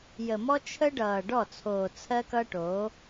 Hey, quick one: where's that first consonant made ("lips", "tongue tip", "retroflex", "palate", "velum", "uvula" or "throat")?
palate